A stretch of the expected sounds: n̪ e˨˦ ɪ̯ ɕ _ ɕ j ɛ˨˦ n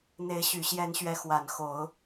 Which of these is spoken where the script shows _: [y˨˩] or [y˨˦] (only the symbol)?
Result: y˨˩